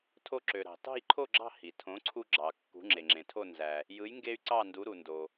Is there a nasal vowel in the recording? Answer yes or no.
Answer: yes